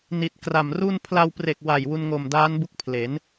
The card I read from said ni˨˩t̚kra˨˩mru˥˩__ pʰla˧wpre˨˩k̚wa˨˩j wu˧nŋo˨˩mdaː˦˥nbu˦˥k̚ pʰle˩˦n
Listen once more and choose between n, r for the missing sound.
n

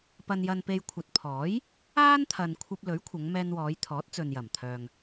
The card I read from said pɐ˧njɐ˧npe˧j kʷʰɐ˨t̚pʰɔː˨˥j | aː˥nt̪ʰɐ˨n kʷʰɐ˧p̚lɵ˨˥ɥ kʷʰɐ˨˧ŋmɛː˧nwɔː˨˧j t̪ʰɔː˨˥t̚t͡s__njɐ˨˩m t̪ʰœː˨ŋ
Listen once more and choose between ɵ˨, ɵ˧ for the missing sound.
ɵ˨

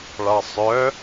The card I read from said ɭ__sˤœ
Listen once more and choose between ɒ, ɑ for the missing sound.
ɑ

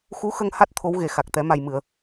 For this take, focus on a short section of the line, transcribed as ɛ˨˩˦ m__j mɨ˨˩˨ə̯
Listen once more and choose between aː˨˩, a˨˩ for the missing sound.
a˨˩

